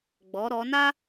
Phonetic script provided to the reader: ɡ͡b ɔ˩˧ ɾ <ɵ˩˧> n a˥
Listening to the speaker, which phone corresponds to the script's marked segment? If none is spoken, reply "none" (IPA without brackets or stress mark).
ɔ˩˧